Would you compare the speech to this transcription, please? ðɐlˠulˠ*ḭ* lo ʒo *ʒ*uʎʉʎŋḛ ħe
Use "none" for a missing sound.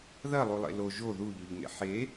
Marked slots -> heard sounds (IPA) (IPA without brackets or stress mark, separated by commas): ḛ, ð